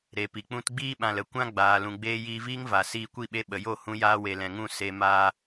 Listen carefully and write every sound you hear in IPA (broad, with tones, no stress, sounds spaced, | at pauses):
ɾ e˨ p i˨ k͡p ũ˧ t ɡ͡b iː˦ ɓ ã˨ l ə˧ kʷ ã˦ ɡ͡b aː˨ l ũ˨ ɡ͡b eː˧ j iː˧ v iː˦ ŋ v a˨ s iː˧ kʷ i˦˨ ɓ e˧ ɓ ə˨ j o˦˨ h ũ˧ j aː˧ w e˨ l ɛ̃˨ ŋ ũ˦˨ s e˧ m aː˦